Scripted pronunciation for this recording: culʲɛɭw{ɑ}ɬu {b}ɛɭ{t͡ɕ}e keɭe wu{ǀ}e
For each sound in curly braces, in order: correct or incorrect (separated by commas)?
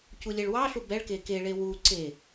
correct, correct, incorrect, correct